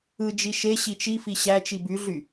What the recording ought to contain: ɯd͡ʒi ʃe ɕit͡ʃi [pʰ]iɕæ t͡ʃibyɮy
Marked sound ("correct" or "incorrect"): incorrect